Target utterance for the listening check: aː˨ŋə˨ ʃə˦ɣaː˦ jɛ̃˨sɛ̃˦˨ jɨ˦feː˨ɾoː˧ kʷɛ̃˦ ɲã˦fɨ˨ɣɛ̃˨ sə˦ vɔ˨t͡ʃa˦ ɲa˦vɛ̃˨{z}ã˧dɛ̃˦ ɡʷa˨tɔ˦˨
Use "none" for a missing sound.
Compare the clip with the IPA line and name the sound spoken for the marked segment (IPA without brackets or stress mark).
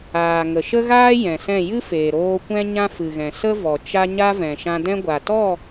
ʃ